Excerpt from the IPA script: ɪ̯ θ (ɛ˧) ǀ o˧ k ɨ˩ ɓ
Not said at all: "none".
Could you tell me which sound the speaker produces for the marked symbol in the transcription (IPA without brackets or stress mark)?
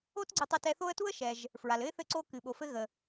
ɘ˧